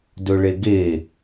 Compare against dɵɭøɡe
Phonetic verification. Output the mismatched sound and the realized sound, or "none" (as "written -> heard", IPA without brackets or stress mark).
ø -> e